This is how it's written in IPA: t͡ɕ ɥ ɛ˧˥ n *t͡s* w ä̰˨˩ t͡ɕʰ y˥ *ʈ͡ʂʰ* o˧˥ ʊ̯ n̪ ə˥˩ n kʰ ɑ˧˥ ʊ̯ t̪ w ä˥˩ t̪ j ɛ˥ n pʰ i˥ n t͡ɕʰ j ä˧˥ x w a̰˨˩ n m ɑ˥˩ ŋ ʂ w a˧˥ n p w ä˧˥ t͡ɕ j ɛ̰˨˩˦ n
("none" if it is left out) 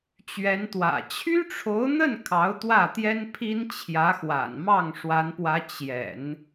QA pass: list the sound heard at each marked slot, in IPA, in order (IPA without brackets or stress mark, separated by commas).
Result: t̪, ʈ͡ʂʰ